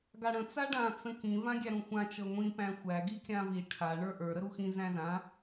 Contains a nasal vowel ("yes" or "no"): yes